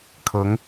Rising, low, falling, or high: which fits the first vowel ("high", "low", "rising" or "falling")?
rising